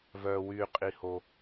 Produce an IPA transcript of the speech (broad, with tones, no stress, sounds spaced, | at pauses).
v œː˩ w yː˩ qʼ i˩ h o˩